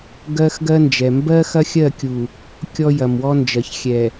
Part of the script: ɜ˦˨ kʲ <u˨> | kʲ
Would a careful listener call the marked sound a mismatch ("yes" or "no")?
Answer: no